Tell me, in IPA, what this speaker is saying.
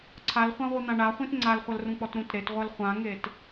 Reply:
ǀʰalχʷãʁʷi n̪ãɳaχʷĩt ŋ͡ǀalχʷɐlrũk͡pɔt ɾũtɾetʁʷɐl χʷãŋet

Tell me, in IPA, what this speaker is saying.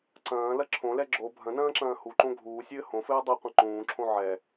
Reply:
ǀɐ̃ːlɐ ǁʰõlɛ ɡ͡ǁo bʱɐ̃nɐ̃ːǁɐ̃ː huǃõ ɡʱuːsʲɘː hõfɘː dˤɘqʷɐ̃ ǃũːǁʰõ ʕɛ

